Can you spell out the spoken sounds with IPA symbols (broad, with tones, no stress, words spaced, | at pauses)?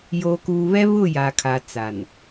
joː˨kuː˨βɛ˦ βʊ˦˨ja˨kʰa˨ t͡sa˨n